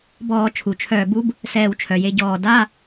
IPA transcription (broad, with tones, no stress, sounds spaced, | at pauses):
b ɔː˧˩˧ t͡ʃʰ u˩ t͡ʃʰ œː˧˩ b u˦˥ b | s ɛː˧˩ w t͡ʃʰ œ˩ j e˨˦ ɟ ɔː˧˩ d a˧˥˧